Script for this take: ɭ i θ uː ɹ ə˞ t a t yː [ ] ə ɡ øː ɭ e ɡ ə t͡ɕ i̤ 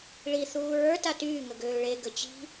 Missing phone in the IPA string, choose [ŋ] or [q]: ŋ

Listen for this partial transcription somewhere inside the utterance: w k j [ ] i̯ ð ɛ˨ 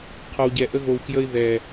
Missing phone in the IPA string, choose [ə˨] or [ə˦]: ə˦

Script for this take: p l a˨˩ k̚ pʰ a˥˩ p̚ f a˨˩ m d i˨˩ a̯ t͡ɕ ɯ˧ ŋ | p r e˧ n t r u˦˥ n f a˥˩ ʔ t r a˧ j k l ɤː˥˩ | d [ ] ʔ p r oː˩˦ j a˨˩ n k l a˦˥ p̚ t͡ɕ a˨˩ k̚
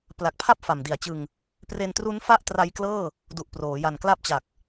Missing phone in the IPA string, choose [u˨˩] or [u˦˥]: u˨˩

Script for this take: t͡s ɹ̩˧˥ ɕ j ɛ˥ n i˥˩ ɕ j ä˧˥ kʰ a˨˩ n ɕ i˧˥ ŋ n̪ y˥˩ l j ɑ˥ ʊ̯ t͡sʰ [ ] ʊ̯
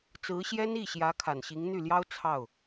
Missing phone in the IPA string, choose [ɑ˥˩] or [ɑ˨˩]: ɑ˥˩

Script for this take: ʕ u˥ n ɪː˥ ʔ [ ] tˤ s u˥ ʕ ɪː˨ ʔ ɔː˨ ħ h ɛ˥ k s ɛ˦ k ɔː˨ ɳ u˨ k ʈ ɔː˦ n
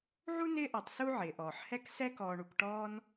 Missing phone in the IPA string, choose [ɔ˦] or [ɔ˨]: ɔ˨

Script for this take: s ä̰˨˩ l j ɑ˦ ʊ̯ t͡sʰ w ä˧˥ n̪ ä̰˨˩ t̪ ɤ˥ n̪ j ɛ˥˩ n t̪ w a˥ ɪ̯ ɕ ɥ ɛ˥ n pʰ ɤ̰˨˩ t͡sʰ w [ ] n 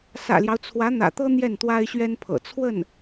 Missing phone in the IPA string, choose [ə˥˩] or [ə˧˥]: ə˥˩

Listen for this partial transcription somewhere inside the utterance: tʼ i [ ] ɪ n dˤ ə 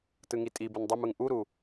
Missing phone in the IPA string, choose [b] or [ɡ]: b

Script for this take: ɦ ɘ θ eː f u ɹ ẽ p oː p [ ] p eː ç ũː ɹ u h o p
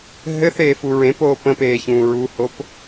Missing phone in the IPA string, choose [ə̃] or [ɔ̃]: ə̃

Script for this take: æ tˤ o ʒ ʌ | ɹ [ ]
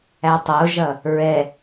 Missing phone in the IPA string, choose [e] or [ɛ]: ɛ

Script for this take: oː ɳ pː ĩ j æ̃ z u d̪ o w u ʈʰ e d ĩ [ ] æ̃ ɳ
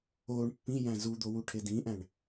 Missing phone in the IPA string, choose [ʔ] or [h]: ʔ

